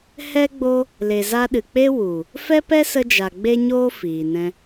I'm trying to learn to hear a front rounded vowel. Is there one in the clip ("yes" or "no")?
no